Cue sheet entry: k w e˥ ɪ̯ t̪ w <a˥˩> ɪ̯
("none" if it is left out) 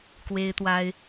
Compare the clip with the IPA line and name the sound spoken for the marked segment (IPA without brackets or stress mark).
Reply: a˥